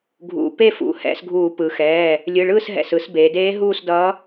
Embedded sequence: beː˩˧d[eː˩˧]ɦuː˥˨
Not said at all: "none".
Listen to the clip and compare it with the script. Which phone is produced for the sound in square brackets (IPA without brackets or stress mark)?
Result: eː˧˥